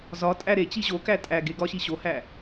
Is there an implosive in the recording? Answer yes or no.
no